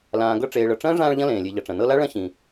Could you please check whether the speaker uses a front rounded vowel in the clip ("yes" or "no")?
no